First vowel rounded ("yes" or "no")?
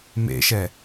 no